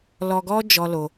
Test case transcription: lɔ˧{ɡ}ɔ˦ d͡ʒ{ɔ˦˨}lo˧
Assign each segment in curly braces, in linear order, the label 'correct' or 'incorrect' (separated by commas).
correct, incorrect